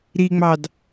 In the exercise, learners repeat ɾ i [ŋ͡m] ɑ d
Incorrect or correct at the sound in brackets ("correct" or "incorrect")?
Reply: correct